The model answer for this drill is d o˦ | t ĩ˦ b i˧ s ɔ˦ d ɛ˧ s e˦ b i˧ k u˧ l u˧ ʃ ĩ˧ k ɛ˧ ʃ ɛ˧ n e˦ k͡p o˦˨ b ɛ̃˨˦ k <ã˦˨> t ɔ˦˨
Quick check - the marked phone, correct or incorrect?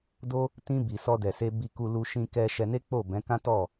incorrect